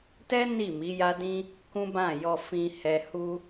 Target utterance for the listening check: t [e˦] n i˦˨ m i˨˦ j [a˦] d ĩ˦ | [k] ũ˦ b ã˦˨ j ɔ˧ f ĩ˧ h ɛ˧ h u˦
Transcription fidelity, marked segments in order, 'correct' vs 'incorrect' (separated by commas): incorrect, correct, correct